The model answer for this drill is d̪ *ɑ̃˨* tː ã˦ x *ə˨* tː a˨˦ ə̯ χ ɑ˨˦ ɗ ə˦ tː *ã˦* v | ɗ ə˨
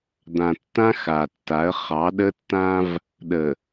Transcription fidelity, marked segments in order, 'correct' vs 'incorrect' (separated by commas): incorrect, incorrect, correct